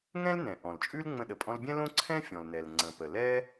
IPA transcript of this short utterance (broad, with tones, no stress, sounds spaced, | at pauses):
ŋ ɛ̃˥ l n ɛ̃˩ ʔ ɔ̃˩ l t͡ʃʼ ʉ˥ l ŋ͡m ə̃˧ ɗ ə˩ pʼ ɔ̃˧ l bʲ ɛ̃˥ l õ˥ ǀʰ ɛ̃˥ fʲ ɔ̃˩ l n ɛ˩ l ŋ͡ǀ ə̃˩ p ə˩ l ɛ˥